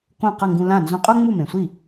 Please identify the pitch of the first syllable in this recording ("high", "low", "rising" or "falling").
falling